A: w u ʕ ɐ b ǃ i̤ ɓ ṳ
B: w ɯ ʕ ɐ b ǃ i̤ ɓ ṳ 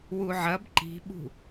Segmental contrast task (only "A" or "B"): A